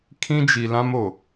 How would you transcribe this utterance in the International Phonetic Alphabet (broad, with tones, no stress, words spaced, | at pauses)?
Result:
kʰĩ˦d͡ʒi˨ lã˦mo˨